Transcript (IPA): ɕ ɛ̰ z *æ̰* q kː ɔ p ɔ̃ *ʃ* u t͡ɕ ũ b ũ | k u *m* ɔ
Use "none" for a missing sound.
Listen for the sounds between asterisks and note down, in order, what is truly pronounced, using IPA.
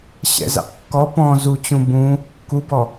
æ̰, z, b

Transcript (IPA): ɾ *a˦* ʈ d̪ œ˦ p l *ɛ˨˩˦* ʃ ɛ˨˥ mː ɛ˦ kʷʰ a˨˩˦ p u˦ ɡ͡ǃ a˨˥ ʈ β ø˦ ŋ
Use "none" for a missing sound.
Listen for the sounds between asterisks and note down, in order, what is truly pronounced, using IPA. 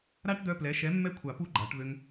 a˦, ɛ˨˥

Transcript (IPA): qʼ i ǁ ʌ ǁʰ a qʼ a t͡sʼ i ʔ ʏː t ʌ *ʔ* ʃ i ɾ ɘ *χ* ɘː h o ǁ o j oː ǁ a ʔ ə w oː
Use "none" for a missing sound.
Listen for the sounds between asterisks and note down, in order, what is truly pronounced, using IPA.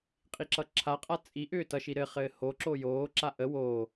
none, χ

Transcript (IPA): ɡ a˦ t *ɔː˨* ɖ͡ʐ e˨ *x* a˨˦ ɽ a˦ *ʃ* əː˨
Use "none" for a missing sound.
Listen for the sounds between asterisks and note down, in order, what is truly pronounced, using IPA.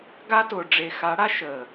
ʊː˨, x, ʃ

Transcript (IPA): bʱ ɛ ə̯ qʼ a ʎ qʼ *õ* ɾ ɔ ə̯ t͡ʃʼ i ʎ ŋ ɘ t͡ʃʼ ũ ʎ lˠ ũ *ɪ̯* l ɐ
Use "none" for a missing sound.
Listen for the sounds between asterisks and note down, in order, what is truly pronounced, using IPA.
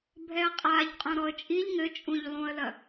õ, ə̯

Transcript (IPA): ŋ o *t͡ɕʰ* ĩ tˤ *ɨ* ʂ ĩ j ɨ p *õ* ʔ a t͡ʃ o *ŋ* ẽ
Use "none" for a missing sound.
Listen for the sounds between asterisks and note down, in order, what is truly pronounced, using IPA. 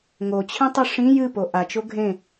t͡ɕʰ, ɨ, o, ɡʱ

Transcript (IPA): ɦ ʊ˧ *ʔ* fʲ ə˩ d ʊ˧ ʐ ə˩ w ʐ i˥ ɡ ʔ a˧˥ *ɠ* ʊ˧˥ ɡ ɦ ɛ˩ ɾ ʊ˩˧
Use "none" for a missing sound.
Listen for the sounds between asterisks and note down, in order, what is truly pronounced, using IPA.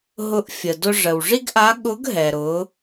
ʔ, ɠ

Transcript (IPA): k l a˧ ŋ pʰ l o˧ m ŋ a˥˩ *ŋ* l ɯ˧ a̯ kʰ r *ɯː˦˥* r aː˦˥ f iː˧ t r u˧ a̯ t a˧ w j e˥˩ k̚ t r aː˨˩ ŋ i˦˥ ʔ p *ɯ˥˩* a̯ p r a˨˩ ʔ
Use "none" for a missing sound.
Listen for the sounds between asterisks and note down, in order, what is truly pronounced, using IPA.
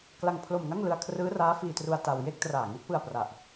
ŋ, ɯː˦˥, ɯ˧

